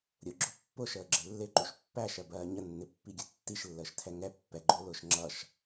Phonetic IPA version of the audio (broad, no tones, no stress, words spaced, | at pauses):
ɾʲʊɡ͡ǁʊ pːʊʃəːɡ͡ǁɪ lːɪǃuʃ pːæʃɜbɜː ɲənːɪpːiɡʲʌ tːiʃlːəːʃtʰɛ ŋɛ pːɛɡ͡ǃʊːlʊːʃ ŋ͡ǁʌʃ